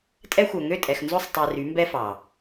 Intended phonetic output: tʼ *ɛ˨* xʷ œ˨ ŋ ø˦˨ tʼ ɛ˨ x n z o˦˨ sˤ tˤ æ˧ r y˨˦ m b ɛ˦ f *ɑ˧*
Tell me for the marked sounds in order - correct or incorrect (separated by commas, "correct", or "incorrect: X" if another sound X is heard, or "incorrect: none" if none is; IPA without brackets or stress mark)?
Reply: incorrect: ɛ˦, incorrect: ɑ˨